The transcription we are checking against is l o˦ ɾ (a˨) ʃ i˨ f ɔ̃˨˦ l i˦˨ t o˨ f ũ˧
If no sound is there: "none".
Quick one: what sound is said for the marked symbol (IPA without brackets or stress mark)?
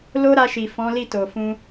a˧